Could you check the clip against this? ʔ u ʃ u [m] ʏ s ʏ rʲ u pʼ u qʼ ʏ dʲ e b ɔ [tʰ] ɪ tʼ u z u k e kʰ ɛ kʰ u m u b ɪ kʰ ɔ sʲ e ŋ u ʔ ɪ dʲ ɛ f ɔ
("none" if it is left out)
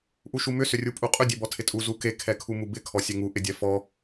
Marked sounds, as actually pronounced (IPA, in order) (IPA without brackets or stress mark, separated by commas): m, tʰ